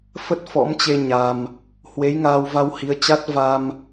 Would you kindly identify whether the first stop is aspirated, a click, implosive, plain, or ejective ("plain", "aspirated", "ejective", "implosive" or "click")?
plain